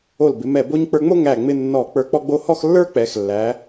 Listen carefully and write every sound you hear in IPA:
o˧˩l bɪ˩˧mɛ˧˩ bo˥ɲ k͡pə˞˧ŋ͡mo˥ ŋæ˧˩ŋ͡mɪ˧ nːɔ˧˩ k͡pə˞˧ k͡pɔ˥ɡ͡bo˥ hɔ˥˧xlːə˞˥k͡pɛ˩˧xlːæ˩˧

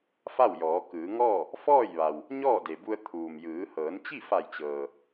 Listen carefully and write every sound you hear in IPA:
fa˥˨wjɔː˩˧ kɯː˩˧ŋɔː˥˨ | fɔː˥˨jʋa˩w | ɲɔː˥˨de˩bu˧ə̯ t̪ʰuː˩mjɯː˩˧ hɤː˩˧nt͡ɕi˥˨fa˧˩jt͡ɕɤː˩

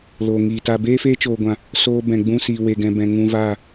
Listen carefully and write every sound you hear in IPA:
loː˨ŋiː˨ta˧ beː˦feː˦t͡ʃoː˨ɡʷã˨ | soː˧bɛ̃˨ɡ͡bũ˧ siː˨we˨ɡɛ̃˨bɛ̃˨ ŋũ˧vaː˦˨

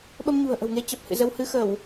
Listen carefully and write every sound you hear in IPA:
ɓə˧mɲṳ˨˩ə̯ʔə̤˨˩wŋe˧ t͡ɕə˨˩p̚hɨ̰˧˨zə˧whɨ˧ xə˧˩˨w

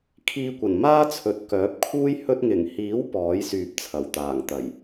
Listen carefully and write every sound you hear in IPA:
kʰiː˧kʷɐ˨˩n maː˥t͡sʰɵ˨t̚kœː˨˥p̚kʰuː˥j hɵ˧t̚ŋɪ˨˩ŋhiː˨˥w pɔː˨˥j syː˧p̚t͡sʰɐ˨˩wt̪aː˨˩ŋt̪ɐ˨˩j

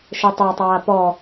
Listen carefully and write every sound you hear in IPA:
ʃetˤatˤaː pɔ

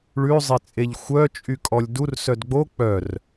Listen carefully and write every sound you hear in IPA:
ɭʉzˤet͡sʼeʎ xʷœt͡ʃʼykʼɔlʲ dursœd ɡ͡bo k͡pœr

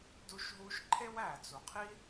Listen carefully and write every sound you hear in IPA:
du˧ʃɦu˧ʃ ǃʰe˦wæ˨t͡su˨qʰi˦

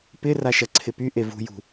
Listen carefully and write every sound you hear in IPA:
pɪ raʃɐǀʰɪpy ʔevṳjṳ

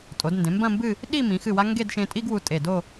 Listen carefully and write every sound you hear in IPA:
tʼo˩˧d ndẽ˩˧mbɐ̃˥˧mbɨ˥˧ | ɗi˥˧ mĩ˩˧xɨ˧˩wa˧ ŋɡe˥˧dʃẽ˧ tʼi˥ɡwu˧tʼe˧˩do˥˧

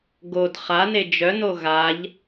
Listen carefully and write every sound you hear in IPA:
ɡod χane d͡ʒœno ɣaʎ

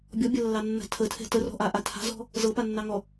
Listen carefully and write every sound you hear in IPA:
bʲɔbʲalːɑnːa̤ tʰətʰɛ̤ tərɔ̤ʔaʔa tʰa̤zɔ̤ | zɤpanːɑŋɔ

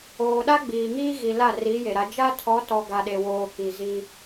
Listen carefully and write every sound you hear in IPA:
oː˨ɗa˦ɡ͡biː˨ŋiː˦ ɣi˨la˦˨ri˨˦ je˨ɾa˨˦ d͡ʒa˦tʰɔ˨˦tɔ˨ ɡa˨ɗe˨woː˨ ki˨ ziː˦

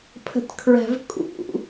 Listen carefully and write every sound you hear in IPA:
pʰə̤tkʰɹæ̤vkʼṵ

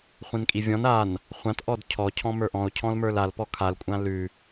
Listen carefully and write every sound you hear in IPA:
χʷĩnkʼivʲɔ̃n an | χʷãtʔɔd cʰɔcʰɔ̃ mə˞ʔɔ̃o̯cʰɔ̃lmə˞l alpɔ kʰalkʷʼã lʉ

